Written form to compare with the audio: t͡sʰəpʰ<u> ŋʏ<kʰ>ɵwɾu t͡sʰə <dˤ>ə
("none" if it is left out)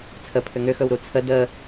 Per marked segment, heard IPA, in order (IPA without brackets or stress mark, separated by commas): ʏ, x, d